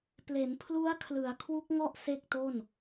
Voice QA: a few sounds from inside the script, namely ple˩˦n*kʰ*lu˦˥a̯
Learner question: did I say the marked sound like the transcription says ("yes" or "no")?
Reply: no